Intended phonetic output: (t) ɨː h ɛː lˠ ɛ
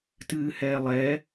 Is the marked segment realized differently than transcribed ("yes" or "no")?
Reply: no